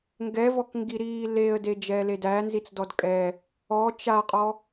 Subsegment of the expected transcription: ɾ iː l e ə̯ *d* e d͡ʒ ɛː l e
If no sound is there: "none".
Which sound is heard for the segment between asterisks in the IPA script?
d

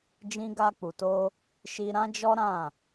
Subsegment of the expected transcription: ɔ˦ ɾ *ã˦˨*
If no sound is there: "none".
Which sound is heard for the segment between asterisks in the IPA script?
ã˦˨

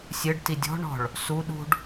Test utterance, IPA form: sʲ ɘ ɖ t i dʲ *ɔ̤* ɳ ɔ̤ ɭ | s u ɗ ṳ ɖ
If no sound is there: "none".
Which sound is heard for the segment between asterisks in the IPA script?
ɔ̤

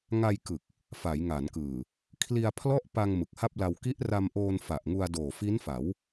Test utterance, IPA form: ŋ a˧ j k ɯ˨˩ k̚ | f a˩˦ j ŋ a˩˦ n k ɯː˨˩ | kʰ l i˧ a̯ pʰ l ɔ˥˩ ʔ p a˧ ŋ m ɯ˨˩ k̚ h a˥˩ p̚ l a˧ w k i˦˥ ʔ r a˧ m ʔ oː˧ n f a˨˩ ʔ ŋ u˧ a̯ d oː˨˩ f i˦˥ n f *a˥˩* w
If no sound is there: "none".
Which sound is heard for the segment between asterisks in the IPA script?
a˩˦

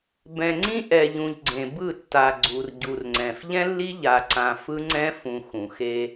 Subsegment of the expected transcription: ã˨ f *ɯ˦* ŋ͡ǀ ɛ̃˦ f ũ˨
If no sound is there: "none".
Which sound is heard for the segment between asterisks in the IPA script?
ɯ˦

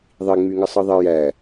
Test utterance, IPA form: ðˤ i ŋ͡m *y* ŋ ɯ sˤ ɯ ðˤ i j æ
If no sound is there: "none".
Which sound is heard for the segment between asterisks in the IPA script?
y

